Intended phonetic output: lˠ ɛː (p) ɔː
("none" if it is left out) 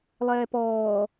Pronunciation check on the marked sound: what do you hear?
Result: p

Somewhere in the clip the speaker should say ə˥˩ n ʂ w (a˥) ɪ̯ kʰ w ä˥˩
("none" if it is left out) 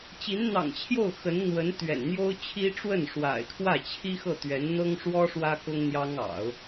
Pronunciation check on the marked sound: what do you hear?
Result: a̰˨˩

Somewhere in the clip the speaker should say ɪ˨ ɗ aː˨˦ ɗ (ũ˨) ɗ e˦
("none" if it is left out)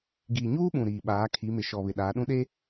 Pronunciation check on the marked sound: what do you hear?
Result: ũ˦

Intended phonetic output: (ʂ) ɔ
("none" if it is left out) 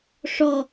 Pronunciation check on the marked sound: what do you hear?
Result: ʂ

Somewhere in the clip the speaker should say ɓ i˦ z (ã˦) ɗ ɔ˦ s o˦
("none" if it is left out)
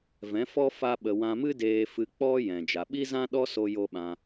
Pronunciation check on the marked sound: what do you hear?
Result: ã˦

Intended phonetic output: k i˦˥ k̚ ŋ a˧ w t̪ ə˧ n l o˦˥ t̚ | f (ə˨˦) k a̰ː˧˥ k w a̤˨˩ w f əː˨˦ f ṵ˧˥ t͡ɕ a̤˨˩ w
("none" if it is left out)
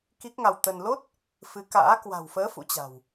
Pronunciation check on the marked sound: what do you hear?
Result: ɨ˨˦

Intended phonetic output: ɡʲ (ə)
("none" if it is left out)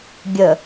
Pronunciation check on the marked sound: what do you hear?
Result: ə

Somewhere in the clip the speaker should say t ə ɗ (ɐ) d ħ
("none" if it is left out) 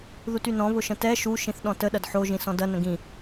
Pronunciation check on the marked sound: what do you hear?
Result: ɐ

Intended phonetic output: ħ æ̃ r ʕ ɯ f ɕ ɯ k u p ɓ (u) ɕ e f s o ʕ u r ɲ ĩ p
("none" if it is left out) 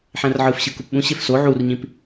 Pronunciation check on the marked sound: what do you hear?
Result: ũ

